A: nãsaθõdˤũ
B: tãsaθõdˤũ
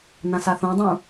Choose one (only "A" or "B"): A